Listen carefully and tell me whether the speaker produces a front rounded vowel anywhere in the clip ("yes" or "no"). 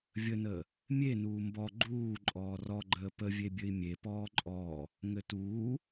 no